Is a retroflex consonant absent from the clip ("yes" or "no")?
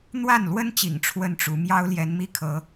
no